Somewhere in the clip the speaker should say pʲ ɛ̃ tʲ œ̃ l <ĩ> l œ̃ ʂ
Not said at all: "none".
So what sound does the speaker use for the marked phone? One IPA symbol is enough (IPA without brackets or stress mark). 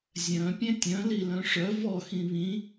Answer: i